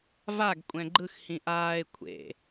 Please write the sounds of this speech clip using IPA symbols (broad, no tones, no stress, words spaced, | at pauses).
vaɡ kʷʼɛ̃ɡ͡ǃɯx hĩʔaːɪ̯ kʷʰḛ